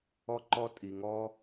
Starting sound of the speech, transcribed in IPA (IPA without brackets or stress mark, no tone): ɔ